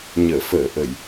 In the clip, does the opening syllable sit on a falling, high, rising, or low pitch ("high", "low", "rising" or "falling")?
low